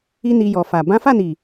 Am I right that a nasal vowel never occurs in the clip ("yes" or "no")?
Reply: no